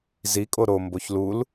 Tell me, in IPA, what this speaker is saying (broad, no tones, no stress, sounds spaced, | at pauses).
z i kʼ o ɾ o m b o ç l u l